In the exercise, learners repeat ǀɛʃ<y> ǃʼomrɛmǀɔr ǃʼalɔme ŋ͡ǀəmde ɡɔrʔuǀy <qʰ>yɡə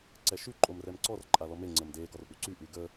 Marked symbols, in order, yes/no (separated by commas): yes, no